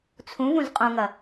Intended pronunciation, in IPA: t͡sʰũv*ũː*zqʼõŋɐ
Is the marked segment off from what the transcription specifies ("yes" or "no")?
yes